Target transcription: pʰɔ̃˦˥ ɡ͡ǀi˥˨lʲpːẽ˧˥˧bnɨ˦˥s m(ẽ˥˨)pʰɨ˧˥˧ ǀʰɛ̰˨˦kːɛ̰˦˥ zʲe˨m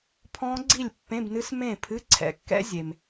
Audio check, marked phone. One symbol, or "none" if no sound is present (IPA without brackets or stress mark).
ẽ˥˨